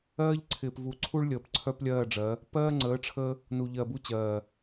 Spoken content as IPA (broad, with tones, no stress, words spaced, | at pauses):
ɜː˦ʎǀʰɪː˨pvu˨ǀʰu˦ɭ lʲəː˨pǀʰœ˦plʲɜː˦˨ɖ͡ʐɜ˨˦ | pɜː˦ŋ͡ǀəː˨˦ʈ͡ʂʰəː˦ | nu˨ʎɜ˨bu˦t͡ɕɜː˨